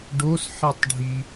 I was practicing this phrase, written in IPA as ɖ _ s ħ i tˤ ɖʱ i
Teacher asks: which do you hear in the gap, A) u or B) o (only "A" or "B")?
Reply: B